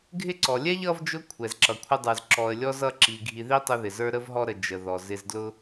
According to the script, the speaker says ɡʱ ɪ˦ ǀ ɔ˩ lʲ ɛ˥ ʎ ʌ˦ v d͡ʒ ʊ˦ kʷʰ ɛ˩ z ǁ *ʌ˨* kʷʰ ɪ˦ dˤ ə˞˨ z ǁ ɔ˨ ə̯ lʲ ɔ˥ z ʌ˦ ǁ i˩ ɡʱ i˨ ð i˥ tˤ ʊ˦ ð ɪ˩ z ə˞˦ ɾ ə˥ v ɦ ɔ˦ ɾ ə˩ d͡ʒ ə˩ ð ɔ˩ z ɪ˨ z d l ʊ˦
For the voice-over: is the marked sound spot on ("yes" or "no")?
no